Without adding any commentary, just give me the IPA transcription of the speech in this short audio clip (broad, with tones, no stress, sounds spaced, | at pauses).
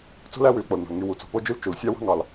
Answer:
t͡s o̤˥ l æ˦ w y˨ l k͡p o˩ l n o̤˩ l ŋ y˨ w u˩ t͡s o̤˨ p o˥ d͡ʒ y˥ l t͡ʃ u˩ l sʲ ɑ˥ w ɑ̤˥ ŋ ɑ˩ l